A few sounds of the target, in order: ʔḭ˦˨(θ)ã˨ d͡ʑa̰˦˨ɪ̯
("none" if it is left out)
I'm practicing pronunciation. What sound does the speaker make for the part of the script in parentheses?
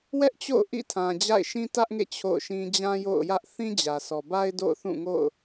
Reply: tʰ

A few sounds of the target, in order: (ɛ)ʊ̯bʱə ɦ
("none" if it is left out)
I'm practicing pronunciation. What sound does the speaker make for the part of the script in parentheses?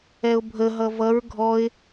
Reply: ɛ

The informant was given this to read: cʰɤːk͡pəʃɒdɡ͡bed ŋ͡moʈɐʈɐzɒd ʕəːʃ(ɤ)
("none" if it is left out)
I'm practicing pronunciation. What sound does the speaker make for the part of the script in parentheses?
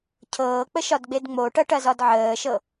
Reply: ɤ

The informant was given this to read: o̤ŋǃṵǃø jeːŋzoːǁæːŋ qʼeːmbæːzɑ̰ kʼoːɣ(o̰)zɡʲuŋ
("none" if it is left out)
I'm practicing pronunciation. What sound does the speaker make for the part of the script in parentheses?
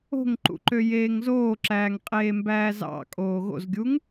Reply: o̰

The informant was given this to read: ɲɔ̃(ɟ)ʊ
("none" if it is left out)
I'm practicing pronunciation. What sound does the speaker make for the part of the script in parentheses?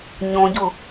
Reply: ɟ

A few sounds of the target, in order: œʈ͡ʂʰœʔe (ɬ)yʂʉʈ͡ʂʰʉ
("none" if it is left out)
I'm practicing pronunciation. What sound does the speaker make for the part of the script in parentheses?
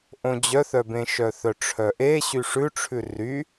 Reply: ɕ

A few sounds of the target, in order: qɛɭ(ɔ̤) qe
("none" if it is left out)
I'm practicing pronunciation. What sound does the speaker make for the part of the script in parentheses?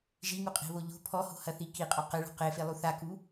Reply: ɔ̤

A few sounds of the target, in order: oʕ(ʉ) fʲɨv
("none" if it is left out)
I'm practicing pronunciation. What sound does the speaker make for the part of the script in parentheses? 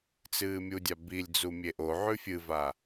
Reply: ʉ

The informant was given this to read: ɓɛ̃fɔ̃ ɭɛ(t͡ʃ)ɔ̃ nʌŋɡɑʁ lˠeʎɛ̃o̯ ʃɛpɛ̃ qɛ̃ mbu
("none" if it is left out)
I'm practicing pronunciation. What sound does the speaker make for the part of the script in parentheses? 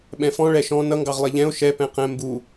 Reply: ʃ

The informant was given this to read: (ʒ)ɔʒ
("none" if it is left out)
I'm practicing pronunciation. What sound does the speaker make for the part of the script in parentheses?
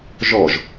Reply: ʒ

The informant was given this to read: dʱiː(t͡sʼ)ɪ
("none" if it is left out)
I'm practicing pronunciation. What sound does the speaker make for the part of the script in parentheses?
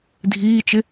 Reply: t͡ʃ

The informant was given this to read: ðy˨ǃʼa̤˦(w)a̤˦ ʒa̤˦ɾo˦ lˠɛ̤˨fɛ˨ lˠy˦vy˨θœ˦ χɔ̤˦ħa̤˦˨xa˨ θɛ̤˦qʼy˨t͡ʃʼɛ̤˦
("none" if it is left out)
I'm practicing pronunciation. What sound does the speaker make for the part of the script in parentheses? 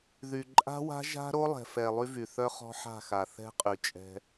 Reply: w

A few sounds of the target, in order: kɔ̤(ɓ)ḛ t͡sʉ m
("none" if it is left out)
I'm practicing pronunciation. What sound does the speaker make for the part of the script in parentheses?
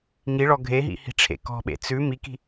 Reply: ɓ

